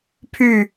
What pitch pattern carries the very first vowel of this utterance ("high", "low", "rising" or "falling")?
falling